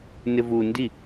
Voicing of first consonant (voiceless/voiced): voiced